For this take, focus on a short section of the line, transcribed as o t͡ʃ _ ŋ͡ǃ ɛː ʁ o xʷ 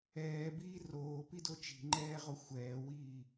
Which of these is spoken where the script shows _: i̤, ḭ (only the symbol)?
i̤